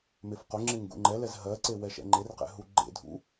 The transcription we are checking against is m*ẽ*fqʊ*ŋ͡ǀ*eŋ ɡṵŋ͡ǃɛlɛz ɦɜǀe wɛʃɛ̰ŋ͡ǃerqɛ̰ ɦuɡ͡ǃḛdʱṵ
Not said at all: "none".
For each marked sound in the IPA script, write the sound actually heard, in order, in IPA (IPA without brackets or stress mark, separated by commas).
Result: e, ŋ͡ǁ